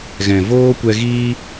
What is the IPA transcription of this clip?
ɣɛ̃˨voː˦kʷɛ˧ ɣiː˦

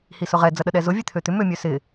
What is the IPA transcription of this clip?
hisʊʁɛ d͡zɐɗəɗɛzʊ vʲet̪ʰøt̪ʏ mømʲøsɪ

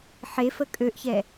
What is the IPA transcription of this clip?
ħefə kʼøʔçɛ

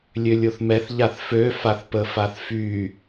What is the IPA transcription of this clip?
lʲølʲoθmɛθ ʎaθfø faθpəfaθfy

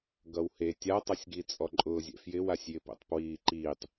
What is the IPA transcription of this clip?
ɡʌwhe tʲatˤʌsʲɡi t͡sʼɔǃʼʊːzʲɛ̰fjɪ wasʲjɪpə̰tˤ pwiːǃiːtˤ

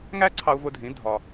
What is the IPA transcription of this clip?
ŋæ˥ǀʰɑ˧ʊ̯vʊ˧dʱĩ˩˧ dʱɒ˩

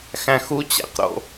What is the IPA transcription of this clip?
xæ̃xut͡ɕæ̰qɾo̰

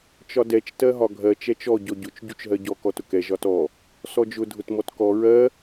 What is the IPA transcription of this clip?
t͡ʃɒdɛt͡ʃ tɜɦɒɡʱɜ t͡ʃɛt͡ʃɔ ɟɔɟʊt͡ʃ ɟut͡ʃɦɜɟɔ kɔtʊkɛ ʒɒtɔ | sɔd͡ʒʊ dʱʊtmɔtkɔ ɹɜ

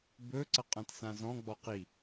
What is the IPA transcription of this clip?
bɵ ǀʌqʼãtsãzɔ̃ ɡ͡bɔqi

